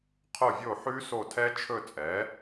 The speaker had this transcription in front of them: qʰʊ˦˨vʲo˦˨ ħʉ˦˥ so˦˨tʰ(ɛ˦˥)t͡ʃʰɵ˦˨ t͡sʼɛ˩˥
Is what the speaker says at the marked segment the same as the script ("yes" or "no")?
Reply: yes